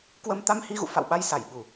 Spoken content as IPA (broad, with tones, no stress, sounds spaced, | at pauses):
k w ə˧ m t̪ a˧ m h i˧ ɣ ṵ˧˨ f a̰˧˨ w ɓ a˧ j s a˧˩ j ɓ u˨˩